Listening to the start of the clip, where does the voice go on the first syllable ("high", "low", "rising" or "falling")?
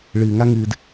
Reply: low